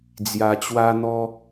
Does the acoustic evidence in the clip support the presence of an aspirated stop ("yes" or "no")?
no